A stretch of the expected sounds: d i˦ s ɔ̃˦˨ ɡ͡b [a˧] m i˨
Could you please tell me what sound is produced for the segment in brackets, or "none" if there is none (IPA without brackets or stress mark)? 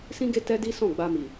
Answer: a˧